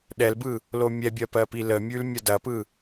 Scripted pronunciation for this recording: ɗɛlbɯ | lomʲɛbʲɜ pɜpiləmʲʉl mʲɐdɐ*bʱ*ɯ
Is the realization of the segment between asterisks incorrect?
yes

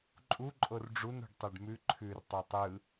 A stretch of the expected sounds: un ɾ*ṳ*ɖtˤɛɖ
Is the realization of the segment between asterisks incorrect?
no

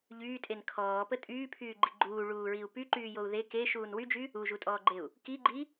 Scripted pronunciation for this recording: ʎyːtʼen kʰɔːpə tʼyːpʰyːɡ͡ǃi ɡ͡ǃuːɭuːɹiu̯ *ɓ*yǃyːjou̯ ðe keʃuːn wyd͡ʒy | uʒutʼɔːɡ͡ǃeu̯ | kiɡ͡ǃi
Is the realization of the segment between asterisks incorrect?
yes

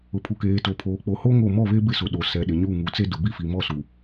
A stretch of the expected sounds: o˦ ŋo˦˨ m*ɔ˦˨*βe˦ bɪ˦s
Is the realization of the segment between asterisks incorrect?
no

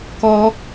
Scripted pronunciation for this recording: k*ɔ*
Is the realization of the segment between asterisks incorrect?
no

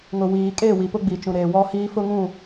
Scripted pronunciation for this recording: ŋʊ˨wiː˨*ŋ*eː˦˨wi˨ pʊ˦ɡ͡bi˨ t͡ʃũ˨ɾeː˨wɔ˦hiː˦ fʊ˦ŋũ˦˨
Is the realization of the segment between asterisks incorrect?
yes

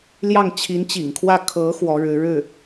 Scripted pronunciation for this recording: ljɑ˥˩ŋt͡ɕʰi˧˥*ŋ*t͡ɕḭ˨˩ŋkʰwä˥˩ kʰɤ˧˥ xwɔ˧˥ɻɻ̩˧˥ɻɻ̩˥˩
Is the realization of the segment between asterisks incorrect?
yes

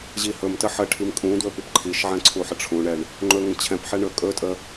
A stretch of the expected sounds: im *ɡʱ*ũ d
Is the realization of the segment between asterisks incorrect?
yes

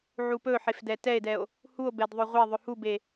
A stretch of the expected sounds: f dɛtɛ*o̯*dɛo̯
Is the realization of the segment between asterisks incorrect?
yes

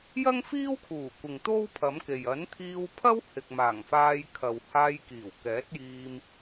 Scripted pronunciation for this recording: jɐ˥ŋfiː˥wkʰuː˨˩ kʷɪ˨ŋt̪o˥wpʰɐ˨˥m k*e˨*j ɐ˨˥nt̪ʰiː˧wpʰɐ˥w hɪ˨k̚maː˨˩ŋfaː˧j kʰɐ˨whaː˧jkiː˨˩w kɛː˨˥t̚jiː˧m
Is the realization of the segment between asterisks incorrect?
no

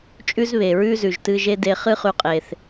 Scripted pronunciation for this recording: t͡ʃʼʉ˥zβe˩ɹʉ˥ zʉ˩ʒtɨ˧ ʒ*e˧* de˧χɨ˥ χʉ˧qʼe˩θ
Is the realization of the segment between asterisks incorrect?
yes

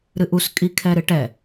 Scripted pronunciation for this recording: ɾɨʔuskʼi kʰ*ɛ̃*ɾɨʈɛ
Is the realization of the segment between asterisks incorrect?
yes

